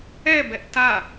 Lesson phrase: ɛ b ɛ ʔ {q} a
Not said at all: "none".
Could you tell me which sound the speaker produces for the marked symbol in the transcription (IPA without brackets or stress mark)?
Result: t